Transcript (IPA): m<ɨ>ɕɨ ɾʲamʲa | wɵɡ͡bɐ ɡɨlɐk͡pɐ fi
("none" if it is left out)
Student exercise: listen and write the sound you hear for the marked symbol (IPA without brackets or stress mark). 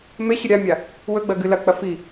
e